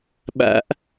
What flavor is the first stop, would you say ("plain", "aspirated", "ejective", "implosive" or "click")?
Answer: implosive